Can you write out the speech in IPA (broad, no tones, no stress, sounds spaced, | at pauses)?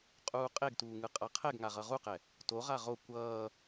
qʼ uː qʼ e ɡ t uː ŋ ɯ qʼ a qʰ ɛ ɡ ŋ a ʁ ʌ ʁ u q ɛ | t o ʁ a ʁ o kʷ ʌː